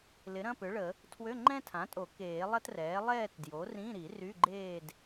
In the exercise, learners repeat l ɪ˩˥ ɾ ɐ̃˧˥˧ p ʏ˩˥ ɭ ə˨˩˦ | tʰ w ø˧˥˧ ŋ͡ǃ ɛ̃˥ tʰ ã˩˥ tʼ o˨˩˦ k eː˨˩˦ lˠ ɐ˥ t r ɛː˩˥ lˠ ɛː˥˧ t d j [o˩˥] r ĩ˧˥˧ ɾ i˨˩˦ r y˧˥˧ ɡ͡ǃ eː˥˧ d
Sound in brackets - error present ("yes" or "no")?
no